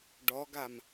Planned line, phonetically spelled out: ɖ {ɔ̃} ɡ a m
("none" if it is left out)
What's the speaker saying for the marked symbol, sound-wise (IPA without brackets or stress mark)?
ɔ